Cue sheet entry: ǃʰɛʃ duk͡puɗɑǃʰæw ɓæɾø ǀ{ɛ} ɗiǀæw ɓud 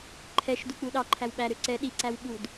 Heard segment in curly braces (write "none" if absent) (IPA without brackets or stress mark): ɛ